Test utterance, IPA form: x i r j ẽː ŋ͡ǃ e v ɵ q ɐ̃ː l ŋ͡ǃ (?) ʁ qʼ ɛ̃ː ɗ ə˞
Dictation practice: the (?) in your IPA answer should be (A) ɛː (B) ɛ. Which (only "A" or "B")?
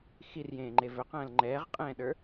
A